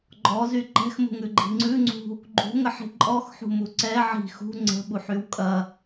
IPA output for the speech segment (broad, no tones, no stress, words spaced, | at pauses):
ɡ͡ǃɔzy ǃɛ̤xmṳŋʉɡ͡ǃi̤ ŋ͡ǀʉŋ͡ǀṳ | ɡ͡ǃṳŋəħi̤ ǃʼɔxħṳmu ǀɛ ʕi̤ xṳ ŋ͡ǀə̤ɓuħyw kʼɐ